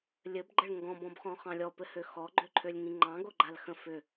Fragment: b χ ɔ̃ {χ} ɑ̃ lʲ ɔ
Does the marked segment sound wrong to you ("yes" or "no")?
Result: no